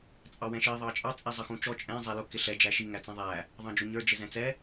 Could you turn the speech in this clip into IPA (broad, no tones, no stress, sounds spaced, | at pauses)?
t͡sʼ ɑ w ɛ̃ ʃ i ðˤ ɑ t͡ʃʼ ɑ t͡sʼ i zˤ ʌ x ũ t͡ʃ ɔ t͡ʃʼ ɛ̃ zˤ ɛ l ʊ k ɪ ɬ ɛ d͡ʒ æ ʃ i ŋ æ t͡s ɛ̃ ðˤ æ | ðˤ ɑ̃ d͡ʒ ʊ ɲ ə˞ d͡ʒ ɪ z ɛ̃ t͡s ɛ